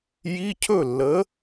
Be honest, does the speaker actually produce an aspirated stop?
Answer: yes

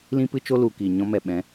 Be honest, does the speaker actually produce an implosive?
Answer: yes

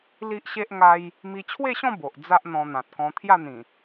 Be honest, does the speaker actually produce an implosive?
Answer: no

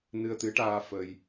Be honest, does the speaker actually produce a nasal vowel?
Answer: no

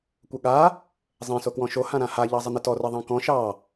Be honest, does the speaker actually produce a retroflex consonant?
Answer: no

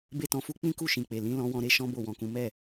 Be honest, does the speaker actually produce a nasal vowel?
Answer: yes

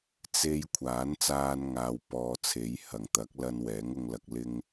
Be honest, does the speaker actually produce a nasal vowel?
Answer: no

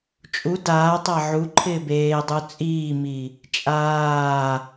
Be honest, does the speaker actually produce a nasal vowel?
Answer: no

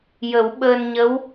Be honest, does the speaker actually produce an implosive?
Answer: yes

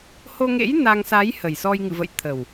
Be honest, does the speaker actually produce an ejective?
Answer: no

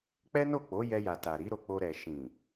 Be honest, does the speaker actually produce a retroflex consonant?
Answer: no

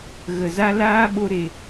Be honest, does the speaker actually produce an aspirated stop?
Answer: no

